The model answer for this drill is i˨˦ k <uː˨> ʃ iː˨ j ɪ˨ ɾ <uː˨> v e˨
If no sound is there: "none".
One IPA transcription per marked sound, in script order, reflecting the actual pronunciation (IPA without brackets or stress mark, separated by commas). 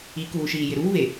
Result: uː˨, uː˦